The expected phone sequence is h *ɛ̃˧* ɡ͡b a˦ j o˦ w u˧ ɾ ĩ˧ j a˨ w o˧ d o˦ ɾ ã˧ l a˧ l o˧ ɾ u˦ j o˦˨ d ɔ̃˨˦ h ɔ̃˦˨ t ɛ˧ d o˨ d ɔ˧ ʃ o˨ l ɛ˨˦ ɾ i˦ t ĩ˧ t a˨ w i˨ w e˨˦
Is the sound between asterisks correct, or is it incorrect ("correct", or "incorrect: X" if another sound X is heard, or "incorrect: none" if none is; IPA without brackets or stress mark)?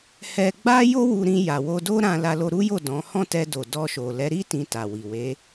incorrect: ɛ˧